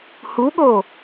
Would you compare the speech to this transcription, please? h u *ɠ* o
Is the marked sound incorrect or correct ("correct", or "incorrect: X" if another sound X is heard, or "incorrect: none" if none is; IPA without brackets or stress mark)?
correct